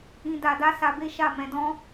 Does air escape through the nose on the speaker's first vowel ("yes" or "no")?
yes